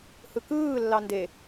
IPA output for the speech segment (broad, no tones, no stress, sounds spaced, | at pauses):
h ɯ k ɯː lː ɑ n d e